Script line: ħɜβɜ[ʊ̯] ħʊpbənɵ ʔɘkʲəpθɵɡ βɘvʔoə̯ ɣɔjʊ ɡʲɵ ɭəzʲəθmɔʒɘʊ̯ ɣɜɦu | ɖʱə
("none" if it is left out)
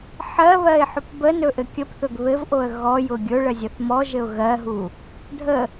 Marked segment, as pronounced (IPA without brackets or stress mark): ɪ̯